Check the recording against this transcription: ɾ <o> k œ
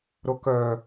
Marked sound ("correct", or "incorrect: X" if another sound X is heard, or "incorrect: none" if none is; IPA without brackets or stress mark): correct